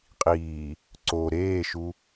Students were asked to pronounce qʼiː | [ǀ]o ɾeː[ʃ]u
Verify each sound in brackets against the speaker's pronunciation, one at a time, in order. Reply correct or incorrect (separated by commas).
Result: correct, correct